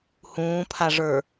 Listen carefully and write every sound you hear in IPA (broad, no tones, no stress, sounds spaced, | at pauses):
h ũː pʰ a ʐ ə˞